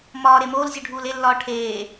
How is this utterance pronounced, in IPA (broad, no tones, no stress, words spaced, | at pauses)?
mɒːɾe moːlzʲuɖʱuːl elːɒː ʈʰeː